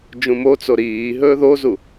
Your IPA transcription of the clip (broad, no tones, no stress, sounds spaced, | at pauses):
d͡ʒ ũ m o t͡s o ɾ iː ɦ ɵː ð o z u